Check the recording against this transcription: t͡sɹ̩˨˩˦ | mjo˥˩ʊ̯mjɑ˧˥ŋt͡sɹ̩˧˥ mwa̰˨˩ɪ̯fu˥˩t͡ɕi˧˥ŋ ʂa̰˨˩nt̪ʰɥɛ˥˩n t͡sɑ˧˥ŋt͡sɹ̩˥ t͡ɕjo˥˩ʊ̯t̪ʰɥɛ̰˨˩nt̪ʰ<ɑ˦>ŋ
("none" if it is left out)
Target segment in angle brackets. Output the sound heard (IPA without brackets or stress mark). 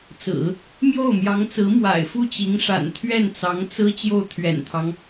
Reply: ɑ˦